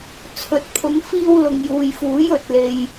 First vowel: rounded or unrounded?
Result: rounded